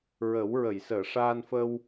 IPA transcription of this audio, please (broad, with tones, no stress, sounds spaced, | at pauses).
ɹ əː˨˩˦ w ɹ ə˨˩˨ j s əː˨˩˨ ʂ aː˧ n f ə˧ w